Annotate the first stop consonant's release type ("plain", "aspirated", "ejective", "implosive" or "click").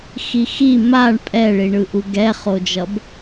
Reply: ejective